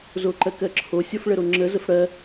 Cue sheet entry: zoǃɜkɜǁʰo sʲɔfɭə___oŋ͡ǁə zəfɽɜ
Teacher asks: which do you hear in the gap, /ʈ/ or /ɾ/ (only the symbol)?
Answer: ɾ